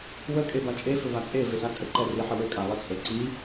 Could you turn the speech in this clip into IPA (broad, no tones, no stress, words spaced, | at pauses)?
wə kʼebat͡ʃʼe føvat͡sʼe vesakʼə ǃɛri ħəwø kʼalˠit͡sʼə ǀi